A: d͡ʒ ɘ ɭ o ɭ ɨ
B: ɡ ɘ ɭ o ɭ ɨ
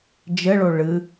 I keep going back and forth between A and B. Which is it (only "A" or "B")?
A